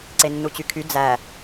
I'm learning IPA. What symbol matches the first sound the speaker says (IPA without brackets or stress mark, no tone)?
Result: ǀ